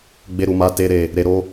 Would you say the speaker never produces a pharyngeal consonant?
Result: yes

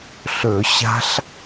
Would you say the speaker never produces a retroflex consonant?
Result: yes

